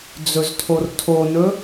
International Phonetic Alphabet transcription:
d͡z ɵ z tʰ o r tʰ o n ɵ

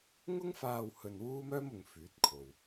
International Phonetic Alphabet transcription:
ŋ ʊ˥ ŋ f aː˧ w h ɵ˧ n w uː˥ m œː˥ m ʊ˨˧ ŋ f yː˨˥ t̚ kʰ o˨ w

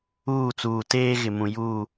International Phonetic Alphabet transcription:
uː˦˨ t͡s uː˨ t eː˦ ɣ ɪ˨ m ũ˨ j uː˦˨

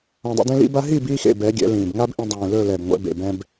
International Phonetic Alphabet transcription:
ã˧ dˤ ḭ˧ d ẽ˦ l ḭ˧ b a˧ ɦ iː˦˨ b iː˦ x ḛ˦˨ b ɛ˨˦ ɡʲ ɛ̰˨˦ l ĩː˨ b ŋ a˦ b ʔ ĩ˧ dˤ ĩː˨ l ɵ˦˨ l ɛ˨ b ŋʷ ɛ̰˨˦ b ḛ˨ b ɛ̃˧ b

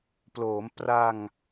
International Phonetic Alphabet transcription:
p l oː˩˦ m p r a˧ ŋ

